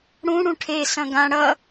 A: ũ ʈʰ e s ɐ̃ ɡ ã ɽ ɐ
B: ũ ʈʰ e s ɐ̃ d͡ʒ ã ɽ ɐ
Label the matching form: A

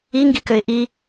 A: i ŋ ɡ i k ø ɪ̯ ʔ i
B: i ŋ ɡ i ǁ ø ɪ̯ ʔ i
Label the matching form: A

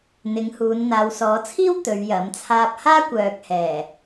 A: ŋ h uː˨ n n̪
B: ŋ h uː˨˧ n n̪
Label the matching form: B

